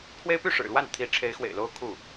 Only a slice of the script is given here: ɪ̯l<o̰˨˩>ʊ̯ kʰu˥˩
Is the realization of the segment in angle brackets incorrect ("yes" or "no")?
yes